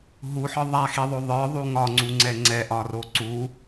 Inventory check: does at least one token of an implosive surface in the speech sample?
no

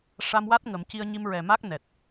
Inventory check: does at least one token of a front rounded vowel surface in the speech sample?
no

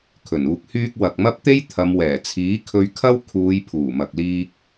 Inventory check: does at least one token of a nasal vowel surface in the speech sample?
no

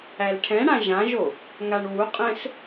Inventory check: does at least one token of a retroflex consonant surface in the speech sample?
yes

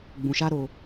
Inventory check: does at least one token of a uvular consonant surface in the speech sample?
no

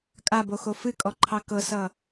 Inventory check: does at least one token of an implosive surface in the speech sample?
no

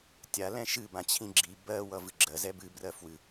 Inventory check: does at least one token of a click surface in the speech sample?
yes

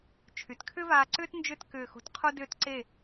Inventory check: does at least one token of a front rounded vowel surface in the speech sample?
yes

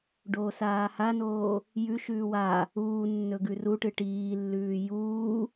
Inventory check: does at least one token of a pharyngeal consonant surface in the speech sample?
no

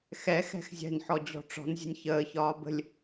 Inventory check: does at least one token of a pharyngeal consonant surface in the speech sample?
yes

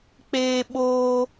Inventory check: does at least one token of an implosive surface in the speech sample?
yes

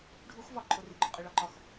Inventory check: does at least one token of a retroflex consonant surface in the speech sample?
yes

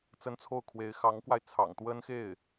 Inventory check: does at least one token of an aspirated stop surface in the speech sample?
yes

